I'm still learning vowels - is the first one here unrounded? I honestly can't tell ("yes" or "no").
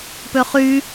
no